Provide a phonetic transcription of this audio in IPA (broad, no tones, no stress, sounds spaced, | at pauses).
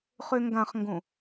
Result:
χ ø ŋ ɡ ã χ ŋ ɡ õ